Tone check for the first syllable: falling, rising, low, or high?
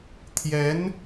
rising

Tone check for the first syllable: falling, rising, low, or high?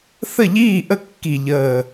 falling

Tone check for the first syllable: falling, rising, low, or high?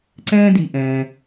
high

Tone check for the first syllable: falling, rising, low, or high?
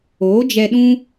rising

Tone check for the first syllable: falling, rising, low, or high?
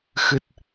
low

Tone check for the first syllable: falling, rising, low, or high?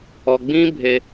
low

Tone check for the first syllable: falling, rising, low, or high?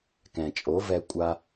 low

